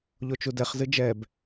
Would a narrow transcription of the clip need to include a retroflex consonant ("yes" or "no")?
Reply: no